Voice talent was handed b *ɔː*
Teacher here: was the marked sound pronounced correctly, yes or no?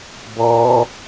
yes